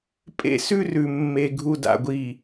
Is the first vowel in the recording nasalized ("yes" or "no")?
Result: no